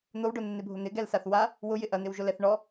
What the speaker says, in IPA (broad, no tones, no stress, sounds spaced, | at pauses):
n̪ o w ɖ o nː ɪ bʱ ʊ n̪ ɪ ɡ ɛ l s a θ w a | w ʊ j ɪ ʔ ɐ n̪ ɪ w ʒ ʊ l ɛ θ ɳ ɔ